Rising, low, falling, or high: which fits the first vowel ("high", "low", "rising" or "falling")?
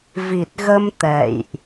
low